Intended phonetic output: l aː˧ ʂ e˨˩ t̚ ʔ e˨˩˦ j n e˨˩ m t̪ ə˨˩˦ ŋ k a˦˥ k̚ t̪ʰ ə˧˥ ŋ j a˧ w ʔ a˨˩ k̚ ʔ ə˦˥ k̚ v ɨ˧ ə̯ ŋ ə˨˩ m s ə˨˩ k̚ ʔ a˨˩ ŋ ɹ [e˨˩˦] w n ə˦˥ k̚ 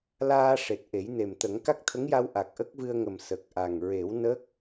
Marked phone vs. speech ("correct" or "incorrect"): correct